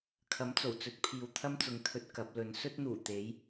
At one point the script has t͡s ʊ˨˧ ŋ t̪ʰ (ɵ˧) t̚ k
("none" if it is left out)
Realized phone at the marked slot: ɵ˧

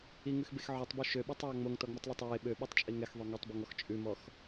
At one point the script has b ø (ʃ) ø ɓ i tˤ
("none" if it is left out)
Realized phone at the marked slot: ʃ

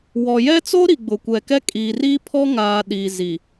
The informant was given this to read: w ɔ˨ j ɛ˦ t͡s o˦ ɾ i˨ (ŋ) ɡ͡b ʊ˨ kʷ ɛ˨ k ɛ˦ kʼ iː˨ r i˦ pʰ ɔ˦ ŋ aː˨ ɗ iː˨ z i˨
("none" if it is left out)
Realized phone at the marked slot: none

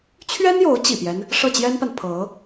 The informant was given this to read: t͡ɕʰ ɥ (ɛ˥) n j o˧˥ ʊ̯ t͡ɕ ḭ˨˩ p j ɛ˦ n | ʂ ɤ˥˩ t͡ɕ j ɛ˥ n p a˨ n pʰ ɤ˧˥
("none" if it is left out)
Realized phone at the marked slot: ɛ˥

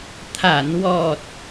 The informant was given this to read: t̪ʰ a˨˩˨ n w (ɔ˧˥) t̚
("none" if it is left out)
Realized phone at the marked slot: ɔ˨˩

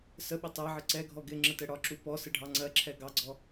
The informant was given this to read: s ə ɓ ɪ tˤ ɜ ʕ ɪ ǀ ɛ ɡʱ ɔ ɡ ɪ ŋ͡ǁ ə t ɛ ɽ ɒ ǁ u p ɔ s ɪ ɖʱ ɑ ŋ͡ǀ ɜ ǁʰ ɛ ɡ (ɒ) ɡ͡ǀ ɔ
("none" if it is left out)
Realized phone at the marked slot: ɑ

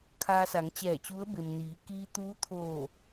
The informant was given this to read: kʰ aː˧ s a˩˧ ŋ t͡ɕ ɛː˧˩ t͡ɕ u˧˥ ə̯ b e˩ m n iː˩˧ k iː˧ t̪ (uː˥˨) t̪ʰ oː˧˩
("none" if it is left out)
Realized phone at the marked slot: uː˧˥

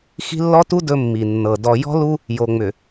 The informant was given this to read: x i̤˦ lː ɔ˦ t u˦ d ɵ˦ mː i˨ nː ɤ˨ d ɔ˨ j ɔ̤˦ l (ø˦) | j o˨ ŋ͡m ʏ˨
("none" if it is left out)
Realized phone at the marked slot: u˦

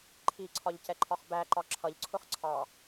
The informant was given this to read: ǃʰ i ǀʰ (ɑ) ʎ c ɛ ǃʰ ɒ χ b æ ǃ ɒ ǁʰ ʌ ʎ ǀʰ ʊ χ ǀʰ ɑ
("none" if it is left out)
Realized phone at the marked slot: ɒ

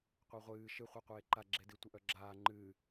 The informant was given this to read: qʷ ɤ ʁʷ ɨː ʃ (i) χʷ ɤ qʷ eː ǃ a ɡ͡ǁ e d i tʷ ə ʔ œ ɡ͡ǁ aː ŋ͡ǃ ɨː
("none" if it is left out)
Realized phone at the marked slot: ɨ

